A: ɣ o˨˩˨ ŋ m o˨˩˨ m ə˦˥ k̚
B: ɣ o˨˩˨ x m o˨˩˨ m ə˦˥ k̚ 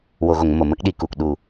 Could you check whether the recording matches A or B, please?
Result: A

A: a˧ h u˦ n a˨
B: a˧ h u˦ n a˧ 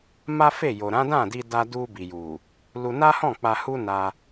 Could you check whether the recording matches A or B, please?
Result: B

